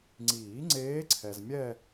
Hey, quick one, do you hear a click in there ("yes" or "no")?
yes